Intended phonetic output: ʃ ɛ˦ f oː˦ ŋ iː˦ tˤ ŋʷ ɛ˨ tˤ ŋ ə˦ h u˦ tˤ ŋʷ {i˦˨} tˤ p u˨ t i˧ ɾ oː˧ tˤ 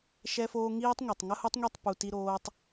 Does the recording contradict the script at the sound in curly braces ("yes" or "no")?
no